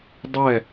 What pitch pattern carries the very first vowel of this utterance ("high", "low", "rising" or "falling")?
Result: falling